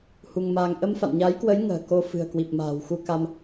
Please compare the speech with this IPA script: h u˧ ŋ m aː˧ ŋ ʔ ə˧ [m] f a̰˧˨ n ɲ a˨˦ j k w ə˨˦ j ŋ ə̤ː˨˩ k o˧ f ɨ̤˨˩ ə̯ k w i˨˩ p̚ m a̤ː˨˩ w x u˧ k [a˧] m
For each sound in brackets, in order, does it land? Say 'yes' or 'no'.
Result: yes, yes

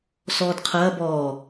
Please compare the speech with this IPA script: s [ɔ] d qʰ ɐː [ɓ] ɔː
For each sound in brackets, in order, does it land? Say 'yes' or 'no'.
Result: no, no

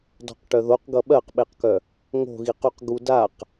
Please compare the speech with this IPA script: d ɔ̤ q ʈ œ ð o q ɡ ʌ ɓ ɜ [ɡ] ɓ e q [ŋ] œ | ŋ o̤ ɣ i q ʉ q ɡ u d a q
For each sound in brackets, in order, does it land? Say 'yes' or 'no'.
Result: no, no

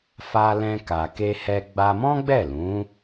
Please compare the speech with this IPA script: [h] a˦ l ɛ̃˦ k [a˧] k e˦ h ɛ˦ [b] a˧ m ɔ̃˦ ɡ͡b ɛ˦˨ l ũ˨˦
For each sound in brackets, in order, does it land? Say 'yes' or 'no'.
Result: no, yes, no

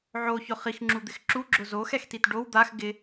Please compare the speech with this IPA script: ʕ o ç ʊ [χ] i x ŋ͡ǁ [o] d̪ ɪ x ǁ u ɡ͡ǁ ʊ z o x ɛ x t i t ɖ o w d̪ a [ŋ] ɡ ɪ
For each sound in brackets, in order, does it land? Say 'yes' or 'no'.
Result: yes, no, no

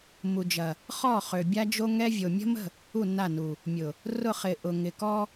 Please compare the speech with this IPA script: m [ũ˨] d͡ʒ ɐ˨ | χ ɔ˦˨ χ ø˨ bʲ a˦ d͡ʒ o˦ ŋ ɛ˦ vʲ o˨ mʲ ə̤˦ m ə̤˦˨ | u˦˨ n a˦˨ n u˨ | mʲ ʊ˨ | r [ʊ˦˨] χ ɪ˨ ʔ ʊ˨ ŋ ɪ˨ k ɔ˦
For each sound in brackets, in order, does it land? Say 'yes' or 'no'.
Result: no, yes

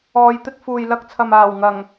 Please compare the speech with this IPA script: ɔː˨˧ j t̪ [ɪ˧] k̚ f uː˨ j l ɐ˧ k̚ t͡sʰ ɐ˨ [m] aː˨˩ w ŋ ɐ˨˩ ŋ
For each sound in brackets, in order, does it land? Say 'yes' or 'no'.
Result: yes, yes

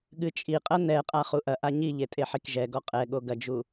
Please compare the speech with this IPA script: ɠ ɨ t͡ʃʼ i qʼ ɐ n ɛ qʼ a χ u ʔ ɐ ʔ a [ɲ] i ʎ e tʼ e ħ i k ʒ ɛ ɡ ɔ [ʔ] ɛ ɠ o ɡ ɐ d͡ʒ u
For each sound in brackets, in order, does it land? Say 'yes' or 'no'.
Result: yes, no

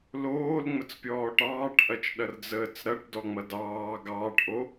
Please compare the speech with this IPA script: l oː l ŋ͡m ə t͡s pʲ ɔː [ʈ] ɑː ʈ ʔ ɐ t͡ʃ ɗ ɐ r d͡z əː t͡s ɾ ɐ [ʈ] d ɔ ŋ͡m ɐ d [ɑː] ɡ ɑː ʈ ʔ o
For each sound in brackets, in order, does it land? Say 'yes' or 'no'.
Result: yes, yes, yes

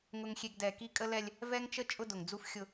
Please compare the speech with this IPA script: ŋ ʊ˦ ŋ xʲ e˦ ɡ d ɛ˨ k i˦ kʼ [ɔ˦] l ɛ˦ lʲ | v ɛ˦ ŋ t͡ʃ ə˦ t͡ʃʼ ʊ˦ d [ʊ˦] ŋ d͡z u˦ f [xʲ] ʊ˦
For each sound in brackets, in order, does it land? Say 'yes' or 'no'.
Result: no, no, yes

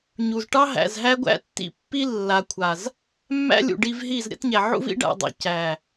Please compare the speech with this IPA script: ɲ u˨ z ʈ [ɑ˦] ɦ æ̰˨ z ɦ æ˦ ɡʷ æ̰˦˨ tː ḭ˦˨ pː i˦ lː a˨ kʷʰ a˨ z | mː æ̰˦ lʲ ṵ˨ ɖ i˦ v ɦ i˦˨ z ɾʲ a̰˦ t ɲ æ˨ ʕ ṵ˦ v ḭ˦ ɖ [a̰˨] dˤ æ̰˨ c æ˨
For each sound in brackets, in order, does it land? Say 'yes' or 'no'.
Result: yes, yes

